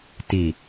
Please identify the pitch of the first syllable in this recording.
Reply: low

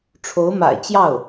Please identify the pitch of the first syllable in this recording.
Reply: rising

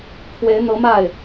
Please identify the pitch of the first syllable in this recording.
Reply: rising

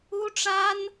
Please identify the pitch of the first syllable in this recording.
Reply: high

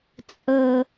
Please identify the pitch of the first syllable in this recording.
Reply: high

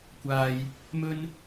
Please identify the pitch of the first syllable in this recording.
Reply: low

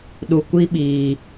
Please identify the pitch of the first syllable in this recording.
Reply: low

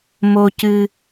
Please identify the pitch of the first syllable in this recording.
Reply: low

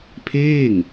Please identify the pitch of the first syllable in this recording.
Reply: falling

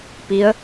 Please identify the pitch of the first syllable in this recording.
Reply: rising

